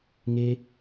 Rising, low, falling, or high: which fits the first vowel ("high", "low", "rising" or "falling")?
high